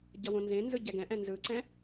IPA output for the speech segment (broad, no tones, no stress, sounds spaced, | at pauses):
ɟ ʌ w õ n z ẽ n z ɯ ɟ ɛ ɡ ɛ̃ ʔ ɛ̃ n z ɯ ǀ ɛ̃